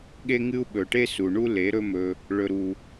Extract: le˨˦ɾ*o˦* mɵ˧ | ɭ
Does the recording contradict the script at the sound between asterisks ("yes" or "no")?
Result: yes